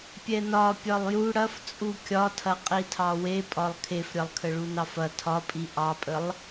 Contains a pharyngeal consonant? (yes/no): no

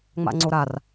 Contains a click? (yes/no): yes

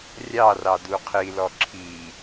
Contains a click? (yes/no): yes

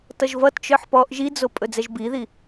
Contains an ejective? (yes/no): yes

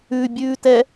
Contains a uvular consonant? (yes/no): no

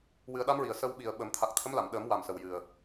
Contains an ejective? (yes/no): no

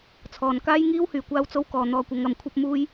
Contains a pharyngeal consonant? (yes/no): no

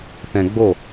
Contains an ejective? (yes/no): no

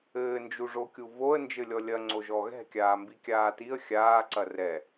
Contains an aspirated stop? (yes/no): no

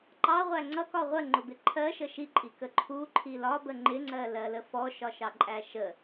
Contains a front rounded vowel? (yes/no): no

